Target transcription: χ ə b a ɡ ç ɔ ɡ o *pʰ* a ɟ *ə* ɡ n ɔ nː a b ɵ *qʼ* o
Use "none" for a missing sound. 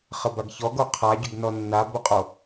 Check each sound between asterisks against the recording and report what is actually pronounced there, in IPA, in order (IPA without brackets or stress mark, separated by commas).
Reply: qʰ, ɵ, qʼ